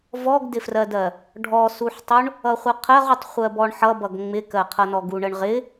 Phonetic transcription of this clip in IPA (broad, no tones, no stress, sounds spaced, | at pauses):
v ɔ ɡ d ɪ f r ɜ d ɜ | ɖʱ ɔ s u ħ tˤ u ɳ | ʌ χʷ ʌ qʰ ɜ ʁ u tˤ χʷ ɜ b ɔ ɳ ħ ʌ b ʌ ɡ ŋ͡m ɪ k ɜ qʰ ʌ n ɔ ɡ u ɳ ə ɳ ʁ ɪ